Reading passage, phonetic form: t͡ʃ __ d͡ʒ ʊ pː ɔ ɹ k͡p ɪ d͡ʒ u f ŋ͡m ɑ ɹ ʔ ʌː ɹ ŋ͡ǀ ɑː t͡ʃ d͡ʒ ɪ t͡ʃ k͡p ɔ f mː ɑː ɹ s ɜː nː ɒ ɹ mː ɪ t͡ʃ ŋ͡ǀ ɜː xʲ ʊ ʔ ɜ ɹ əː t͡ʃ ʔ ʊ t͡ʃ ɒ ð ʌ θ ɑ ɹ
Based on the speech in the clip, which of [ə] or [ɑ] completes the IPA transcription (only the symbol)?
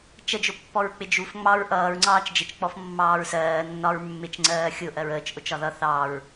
ə